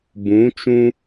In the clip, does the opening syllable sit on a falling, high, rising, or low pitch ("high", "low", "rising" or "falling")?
rising